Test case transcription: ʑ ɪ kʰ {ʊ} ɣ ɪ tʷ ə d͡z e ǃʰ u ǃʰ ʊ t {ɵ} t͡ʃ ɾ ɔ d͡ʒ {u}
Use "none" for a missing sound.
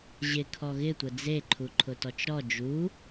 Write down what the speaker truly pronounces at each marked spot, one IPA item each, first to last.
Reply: ɔ, ɔ, u

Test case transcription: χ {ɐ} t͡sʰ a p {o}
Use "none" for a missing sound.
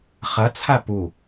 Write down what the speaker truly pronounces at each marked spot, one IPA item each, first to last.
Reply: ɐ, u

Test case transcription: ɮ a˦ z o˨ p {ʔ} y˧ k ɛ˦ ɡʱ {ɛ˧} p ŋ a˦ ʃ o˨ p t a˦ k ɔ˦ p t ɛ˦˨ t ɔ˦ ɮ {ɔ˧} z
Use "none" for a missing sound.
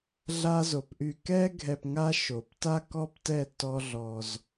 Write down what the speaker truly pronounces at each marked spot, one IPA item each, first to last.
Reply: ʔ, ɛ˧, ɔ˧

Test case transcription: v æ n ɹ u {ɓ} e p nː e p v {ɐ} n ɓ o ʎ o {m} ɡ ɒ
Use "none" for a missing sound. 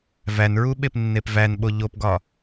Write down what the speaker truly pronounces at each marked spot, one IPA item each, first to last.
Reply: ɓ, æ, p

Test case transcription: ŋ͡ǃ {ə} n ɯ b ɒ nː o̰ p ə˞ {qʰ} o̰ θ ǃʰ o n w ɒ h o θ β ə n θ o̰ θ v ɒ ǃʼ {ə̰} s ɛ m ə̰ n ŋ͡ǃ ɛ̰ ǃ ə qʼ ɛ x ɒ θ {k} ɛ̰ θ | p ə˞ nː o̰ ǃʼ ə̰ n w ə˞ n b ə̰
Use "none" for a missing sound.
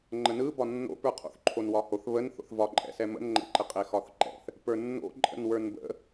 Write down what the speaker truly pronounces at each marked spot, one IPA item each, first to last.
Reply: ə, qʰ, ɛ̰, ǃ

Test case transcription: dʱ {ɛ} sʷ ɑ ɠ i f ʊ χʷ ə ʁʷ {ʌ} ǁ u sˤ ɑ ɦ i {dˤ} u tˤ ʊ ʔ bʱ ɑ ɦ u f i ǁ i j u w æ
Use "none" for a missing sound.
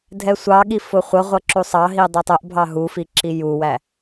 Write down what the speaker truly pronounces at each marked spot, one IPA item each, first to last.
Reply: ɛ, ʌ, dˤ

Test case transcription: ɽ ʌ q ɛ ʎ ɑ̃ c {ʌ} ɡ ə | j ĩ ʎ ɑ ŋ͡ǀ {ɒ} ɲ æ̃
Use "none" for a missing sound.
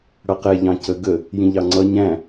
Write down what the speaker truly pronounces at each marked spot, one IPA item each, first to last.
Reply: ə, ʌ

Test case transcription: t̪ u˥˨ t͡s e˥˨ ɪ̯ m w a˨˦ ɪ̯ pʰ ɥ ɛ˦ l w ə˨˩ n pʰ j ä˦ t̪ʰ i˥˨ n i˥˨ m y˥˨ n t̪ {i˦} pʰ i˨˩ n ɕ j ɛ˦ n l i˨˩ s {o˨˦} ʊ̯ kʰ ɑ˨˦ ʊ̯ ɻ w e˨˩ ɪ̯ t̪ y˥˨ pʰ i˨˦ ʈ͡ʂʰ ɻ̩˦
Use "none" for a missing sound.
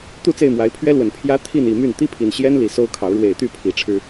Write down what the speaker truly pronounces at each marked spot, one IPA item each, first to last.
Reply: i˦, o˦

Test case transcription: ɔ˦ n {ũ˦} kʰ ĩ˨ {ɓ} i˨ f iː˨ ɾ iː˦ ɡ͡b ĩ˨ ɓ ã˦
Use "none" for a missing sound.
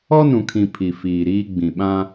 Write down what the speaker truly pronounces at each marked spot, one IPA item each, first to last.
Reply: ũ˨, pʰ

